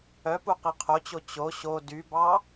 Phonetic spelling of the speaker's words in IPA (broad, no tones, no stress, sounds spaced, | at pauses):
œ p u q i qʰ o t͡ɕ o t͡ɕ o ɕ o d y b ɑ